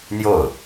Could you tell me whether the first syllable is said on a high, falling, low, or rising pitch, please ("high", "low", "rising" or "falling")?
falling